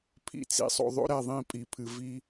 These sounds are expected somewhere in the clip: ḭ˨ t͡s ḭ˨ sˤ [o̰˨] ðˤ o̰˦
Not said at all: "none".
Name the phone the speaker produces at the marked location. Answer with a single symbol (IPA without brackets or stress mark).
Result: o̰˨